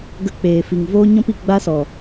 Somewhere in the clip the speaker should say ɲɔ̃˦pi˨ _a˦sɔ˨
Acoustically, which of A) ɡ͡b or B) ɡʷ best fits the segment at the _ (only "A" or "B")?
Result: A